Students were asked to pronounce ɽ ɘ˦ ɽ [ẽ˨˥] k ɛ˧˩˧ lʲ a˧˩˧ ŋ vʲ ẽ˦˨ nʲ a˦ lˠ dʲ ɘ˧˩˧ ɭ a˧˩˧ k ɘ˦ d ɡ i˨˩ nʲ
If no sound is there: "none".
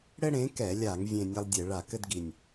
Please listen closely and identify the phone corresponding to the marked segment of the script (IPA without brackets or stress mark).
ẽ˨˥